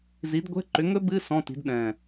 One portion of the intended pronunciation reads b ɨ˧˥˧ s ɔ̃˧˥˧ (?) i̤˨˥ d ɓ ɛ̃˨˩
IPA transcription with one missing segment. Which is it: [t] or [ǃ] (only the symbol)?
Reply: t